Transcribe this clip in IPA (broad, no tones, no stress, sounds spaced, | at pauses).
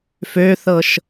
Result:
f ø θ ɤ ʃ